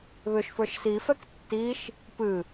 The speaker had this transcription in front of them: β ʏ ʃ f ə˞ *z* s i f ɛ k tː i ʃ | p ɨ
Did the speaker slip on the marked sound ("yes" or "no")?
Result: yes